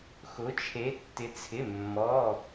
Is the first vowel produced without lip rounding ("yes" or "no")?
no